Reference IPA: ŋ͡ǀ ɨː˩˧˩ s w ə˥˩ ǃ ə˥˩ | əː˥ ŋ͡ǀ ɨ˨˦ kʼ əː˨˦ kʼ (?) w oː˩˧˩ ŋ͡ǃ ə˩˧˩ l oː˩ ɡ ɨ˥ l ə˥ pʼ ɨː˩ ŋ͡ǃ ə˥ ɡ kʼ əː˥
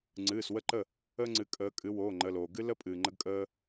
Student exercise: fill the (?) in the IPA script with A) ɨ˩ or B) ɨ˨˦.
B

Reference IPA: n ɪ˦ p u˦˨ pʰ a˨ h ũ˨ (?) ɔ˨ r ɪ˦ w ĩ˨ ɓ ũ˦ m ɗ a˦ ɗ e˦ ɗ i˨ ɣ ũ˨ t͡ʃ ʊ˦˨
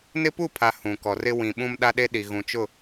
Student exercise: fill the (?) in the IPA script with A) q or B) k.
B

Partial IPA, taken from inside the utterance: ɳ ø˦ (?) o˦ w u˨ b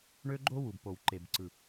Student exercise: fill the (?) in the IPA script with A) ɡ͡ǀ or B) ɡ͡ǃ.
B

